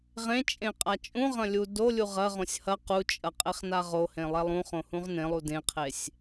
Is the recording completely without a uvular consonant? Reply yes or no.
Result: no